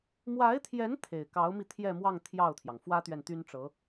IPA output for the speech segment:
m w a˧˥ ɪ̯ t̪ʰ j ɛ˧˥ n t̪ʰ e˨˩ ɪ̯ k ɑ˧˥ ʊ̯ m i˧ t̪ʰ j ɛ˥˧ m w ɑ˥˧ ŋ t̪ʰ j ɑ˥˩ ʊ̯ t̪ʰ j ɑ˩ ŋ f w ä˥ t̪ ɥ ɛ˨ n t̪ y˥ n ʈ͡ʂ ɤ˧˥

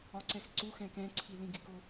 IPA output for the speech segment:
ɒ ǀ ɛ x ǀ u x ɛ̃ k ɛ̃ ǀʰ i l ĩ ɡ ɪ k ʊ

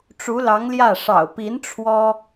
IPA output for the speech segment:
ʈ͡ʂ u˧˥ l ɑ˧˥ ŋ l j ä˥˩ ʂ ɑ̰˨˩ ʊ̯ p i˧˥ n ʈ͡ʂʰ w ɔ˥

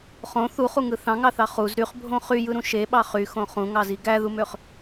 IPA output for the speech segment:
χ õ θ u χ u ŋ ɯ θ ɑ̃ ŋ ɑ θ ɑ χ u z ɾ y χ bʱ õ χ y j ɯ ɾ ũ ʃ e ɓ ɑ χ y x õ χ ũ ŋ ɑ z i ɡ æ ð u m ø χ

